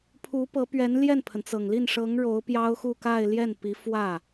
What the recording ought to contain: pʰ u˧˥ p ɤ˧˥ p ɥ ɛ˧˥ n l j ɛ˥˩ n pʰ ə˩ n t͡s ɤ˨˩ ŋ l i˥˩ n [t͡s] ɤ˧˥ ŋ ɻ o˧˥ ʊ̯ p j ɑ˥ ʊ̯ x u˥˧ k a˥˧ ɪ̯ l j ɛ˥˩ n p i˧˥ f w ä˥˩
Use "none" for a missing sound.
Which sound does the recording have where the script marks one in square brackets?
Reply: ʂ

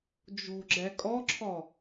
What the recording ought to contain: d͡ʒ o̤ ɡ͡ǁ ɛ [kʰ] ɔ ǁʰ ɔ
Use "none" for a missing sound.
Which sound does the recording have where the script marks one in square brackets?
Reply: kʼ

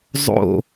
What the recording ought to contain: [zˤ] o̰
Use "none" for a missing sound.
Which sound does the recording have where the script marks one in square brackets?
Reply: zˤ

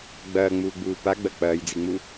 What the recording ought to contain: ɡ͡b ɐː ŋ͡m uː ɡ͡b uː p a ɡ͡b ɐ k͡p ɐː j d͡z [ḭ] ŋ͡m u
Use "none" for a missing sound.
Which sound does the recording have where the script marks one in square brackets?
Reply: i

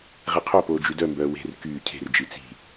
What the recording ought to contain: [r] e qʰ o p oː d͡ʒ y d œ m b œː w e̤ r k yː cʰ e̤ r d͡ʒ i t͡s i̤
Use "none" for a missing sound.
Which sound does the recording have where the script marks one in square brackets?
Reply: ʁ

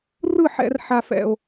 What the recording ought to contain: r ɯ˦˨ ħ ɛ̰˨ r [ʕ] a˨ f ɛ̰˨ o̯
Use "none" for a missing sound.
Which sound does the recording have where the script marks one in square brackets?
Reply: ħ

